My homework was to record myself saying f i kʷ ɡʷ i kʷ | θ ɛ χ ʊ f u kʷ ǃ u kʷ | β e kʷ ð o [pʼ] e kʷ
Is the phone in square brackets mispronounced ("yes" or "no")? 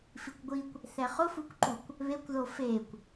yes